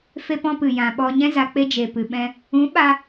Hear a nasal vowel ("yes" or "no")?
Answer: yes